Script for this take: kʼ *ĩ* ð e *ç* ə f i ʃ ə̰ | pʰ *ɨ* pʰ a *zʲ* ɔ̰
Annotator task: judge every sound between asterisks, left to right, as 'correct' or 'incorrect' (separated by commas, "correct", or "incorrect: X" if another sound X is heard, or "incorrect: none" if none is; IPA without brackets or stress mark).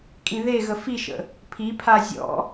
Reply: correct, incorrect: ɣ, incorrect: i, correct